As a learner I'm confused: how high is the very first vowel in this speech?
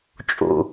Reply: high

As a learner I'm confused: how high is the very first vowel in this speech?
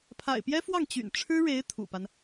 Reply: low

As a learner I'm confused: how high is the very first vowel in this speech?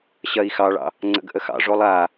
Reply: low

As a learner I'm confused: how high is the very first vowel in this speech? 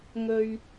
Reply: mid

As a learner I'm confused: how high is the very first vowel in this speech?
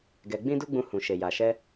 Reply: mid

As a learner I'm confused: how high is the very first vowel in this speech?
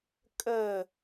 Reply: mid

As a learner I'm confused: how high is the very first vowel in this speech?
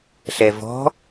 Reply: mid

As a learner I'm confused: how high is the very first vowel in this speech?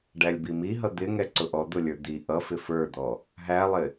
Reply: low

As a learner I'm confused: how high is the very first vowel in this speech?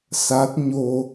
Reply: low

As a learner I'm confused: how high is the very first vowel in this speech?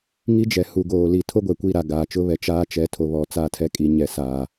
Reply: high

